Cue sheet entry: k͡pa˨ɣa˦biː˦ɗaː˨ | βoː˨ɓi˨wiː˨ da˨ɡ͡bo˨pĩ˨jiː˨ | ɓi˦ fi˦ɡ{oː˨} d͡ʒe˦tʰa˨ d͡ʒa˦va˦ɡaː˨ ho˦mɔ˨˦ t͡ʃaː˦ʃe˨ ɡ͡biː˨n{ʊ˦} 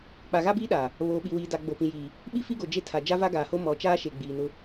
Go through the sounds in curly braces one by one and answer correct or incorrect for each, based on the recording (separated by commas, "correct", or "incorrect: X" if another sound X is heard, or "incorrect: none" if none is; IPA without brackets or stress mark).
incorrect: o˨, correct